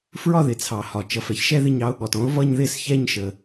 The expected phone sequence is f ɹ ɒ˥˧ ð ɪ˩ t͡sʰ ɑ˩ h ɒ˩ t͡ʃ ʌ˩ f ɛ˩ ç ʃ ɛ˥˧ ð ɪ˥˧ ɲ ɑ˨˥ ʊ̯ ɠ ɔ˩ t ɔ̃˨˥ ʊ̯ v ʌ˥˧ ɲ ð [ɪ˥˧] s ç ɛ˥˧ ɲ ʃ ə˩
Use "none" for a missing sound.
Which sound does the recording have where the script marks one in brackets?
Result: ɪ˥˧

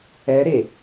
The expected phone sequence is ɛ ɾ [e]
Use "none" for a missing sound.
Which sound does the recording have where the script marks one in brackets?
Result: e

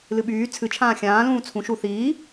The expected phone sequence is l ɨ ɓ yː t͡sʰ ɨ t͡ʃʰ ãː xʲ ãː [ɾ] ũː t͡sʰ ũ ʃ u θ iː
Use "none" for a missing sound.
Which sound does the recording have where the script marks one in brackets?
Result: l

